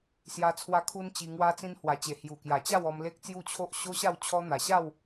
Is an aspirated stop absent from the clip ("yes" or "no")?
no